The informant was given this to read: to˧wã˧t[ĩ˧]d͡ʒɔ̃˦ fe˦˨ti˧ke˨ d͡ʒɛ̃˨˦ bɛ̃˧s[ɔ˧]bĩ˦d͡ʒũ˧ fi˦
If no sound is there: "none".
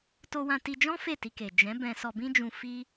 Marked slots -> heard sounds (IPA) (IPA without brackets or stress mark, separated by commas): i˧, ɔ˧